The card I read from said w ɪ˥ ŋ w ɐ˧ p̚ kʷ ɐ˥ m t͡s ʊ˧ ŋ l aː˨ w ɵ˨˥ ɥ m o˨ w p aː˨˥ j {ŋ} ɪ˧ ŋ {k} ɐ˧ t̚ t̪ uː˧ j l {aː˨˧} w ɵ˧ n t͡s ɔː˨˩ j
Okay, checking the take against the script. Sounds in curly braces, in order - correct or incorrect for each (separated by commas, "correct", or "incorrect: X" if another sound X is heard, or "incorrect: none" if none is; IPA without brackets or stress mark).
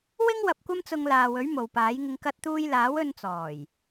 correct, correct, incorrect: aː˨˥